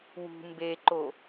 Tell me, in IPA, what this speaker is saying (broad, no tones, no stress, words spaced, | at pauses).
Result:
wṳ mbeǃo